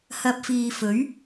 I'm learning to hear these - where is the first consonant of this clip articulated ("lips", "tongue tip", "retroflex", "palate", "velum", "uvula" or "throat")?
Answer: throat